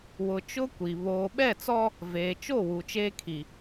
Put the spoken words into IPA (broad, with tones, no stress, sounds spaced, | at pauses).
w ʊ˨ t͡ʃ ʊ˦ kʷ i˨ β oː˨ ɓ ɛ˦˨ t͡s ɔ˦ | v eː˨ t͡ʃ o˦˨ w u˨ t͡ʃ eː˦ kʰ i˨